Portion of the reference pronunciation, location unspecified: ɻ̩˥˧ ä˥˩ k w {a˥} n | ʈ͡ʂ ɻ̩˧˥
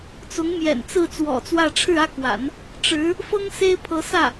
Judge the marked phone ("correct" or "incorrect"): incorrect